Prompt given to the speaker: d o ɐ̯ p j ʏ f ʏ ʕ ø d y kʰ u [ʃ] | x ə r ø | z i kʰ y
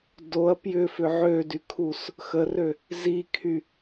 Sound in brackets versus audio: incorrect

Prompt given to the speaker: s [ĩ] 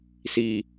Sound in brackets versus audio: incorrect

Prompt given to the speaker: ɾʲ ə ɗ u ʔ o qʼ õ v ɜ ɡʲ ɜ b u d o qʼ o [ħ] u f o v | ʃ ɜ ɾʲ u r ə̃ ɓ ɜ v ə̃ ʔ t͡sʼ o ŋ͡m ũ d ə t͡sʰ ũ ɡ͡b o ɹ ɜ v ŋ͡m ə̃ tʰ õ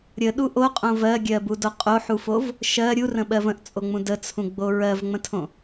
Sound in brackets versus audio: correct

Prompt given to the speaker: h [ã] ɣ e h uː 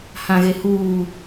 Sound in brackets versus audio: correct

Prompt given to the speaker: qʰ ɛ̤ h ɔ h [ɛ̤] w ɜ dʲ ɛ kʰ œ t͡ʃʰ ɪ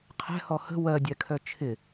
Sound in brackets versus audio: incorrect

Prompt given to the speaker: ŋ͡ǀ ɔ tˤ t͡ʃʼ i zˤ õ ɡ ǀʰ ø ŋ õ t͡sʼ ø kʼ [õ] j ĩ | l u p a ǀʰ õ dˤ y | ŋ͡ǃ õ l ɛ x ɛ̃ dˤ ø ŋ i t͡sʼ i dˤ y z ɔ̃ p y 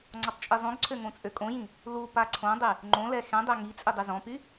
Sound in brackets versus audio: correct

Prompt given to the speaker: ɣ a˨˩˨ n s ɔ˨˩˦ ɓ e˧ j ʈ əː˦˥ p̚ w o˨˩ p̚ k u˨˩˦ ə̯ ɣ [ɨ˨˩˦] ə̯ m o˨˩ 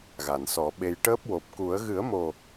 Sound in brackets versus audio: correct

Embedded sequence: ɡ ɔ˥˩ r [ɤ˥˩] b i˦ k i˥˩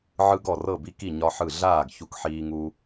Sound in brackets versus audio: correct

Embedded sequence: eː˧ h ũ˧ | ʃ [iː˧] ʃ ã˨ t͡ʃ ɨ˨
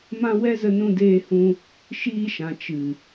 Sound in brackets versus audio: correct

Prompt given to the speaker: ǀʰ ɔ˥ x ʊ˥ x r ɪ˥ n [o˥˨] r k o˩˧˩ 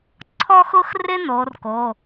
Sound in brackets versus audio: incorrect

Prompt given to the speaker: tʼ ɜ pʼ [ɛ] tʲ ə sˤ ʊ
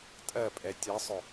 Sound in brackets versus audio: correct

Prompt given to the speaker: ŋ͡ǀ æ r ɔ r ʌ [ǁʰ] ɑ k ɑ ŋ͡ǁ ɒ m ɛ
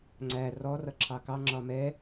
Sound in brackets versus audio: correct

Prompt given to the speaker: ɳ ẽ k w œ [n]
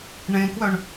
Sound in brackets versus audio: incorrect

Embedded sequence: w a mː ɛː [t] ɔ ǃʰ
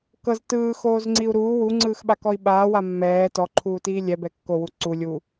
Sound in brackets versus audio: correct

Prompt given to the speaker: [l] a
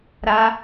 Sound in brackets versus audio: incorrect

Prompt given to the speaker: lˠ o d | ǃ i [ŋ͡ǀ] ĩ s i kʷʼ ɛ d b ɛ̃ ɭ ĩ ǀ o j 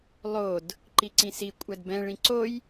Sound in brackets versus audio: incorrect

